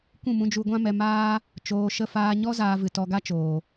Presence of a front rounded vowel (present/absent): absent